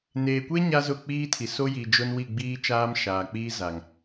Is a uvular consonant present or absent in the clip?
absent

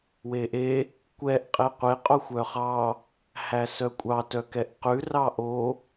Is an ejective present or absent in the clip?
present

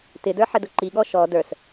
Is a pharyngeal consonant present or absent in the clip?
present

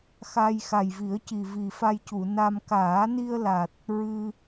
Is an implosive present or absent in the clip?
absent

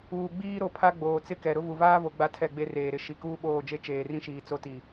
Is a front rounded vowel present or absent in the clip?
absent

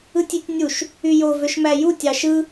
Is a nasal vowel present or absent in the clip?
absent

